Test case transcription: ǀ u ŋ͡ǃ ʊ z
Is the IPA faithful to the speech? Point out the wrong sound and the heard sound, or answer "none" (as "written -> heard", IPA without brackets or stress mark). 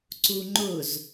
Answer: none